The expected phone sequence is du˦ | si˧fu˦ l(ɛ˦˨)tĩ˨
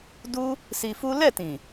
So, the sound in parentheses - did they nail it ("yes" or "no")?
yes